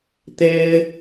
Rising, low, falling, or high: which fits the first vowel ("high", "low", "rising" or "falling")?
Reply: high